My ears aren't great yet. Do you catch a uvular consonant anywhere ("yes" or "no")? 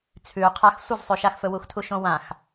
yes